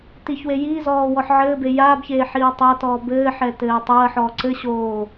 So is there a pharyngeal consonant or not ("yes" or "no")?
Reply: yes